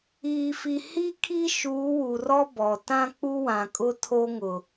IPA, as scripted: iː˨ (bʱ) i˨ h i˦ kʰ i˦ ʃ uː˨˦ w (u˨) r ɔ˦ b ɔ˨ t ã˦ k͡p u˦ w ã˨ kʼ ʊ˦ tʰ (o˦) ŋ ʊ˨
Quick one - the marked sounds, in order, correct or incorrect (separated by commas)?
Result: incorrect, correct, correct